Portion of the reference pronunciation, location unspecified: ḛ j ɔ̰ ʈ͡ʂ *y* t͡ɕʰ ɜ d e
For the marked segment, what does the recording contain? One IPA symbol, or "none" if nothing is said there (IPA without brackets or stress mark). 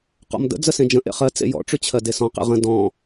y